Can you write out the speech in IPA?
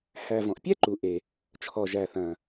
hæ˩ vɔ̃˩ʔpʲæ˥ǃu˩ʔe˩ | t͡ʃʰɔ˩ʒæ˩θɐ̃˩

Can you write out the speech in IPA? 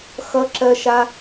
xʌǁɜʃa

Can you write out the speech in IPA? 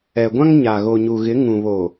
ɛ˨ɡʷã˦ŋɲa˨ ɣo˨ɲu˨ɣɪ˨˦ ŋũ˨βo˨

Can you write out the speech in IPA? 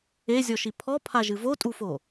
ezʲɔʃi pʰɔpʰaʒɨ votʼufo

